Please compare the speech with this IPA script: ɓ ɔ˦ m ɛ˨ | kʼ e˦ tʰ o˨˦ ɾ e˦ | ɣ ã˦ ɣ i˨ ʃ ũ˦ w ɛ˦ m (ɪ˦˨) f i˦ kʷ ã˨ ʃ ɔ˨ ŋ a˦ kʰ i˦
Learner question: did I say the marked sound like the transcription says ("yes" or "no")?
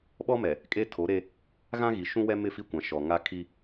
yes